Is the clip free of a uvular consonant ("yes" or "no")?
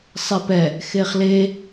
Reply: no